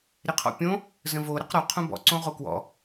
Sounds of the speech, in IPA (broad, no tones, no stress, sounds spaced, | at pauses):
ɾ ɪ qʰ ɔ̰ pʲ õ | z ə̃ v o ɾ ə q ɾ ɔ qʰ õ b ɔ̰ ǀ õ ʁ o k w ɔ̰